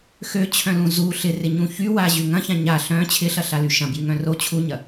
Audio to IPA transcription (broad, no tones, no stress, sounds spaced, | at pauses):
x ø t͡ɕʰ œ̃ l ũ z u ɬ ɪ r ɪ ɲ ũ ç y w a ʑ y ŋ ɐ̃ ç ã ɲ a ɬ œ̃ t͡ɕʰ ɪ ɬ ɐ ɬ a l y ʃ ɐ̃ b j y ŋ œ̃ r o t͡ɕʰ u ɲ ɐ